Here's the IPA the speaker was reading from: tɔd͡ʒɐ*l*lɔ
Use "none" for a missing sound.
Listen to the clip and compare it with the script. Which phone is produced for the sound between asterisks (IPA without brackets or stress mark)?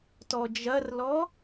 r